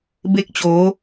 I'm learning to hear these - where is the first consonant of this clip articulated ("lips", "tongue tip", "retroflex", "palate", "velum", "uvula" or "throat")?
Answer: lips